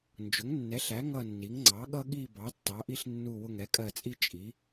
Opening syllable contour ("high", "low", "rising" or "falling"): rising